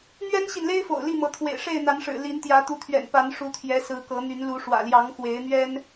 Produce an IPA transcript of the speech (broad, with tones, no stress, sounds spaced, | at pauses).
n̪ ɥ ɛ˦ n ɕ i˨ n l e˦ ɪ̯ f o̰˨˩ ʊ̯ l i˥˨ m ɤ˨˦ t̪ʰ w ḛ˨˩ ɪ̯ ʂ e˥˨ ɪ̯ n̪ a˨˦ n ʂ ɻ̩˨˩ l i˨˦ n t̪ j ä˨˦ t̪ u˨˦ t̪ʰ ɥ ɛ̰˨˩ n p a˨˦ n ʂ u˨˦ t̪ʰ j ɛ˨˦ s ɹ̩˨˦ k ɤ˨˦ n̪ y˨˦ n l u˨˦ ʂ w ä̰˨˩ l j ɑ˨˦ ŋ x w e˨˦ ɪ̯ n̪ ɥ ɛ˦ n